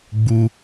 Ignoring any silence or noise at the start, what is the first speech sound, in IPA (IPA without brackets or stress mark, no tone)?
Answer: ɡ͡b